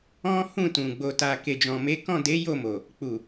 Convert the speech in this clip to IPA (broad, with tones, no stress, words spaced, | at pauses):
ɔ̃˦ hũ˦˨tũ˨ ɡ͡bo˨ta˨ ke˨d͡ʒɔ̃˨me˨˦ kɔ̃˦˨de˨˦ jo˦˨mo˨ | k͡pu˨